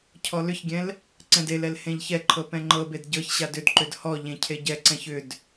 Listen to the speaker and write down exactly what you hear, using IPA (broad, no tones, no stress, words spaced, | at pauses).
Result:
cʰɔlʏçɡʲɛ̃l | ǀɛ̃delɛl hẽʎçɛǃʰɤ pɛ̃ŋ͡ǃɤbed ɟɤçɕad ʏdǃʏd hɔ ʎẽcʰeɟɛǀɛ̃ç ʏd